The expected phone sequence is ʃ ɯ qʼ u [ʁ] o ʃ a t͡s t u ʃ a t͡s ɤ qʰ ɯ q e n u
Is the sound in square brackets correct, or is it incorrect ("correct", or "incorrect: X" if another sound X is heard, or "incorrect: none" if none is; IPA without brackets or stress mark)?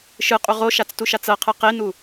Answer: correct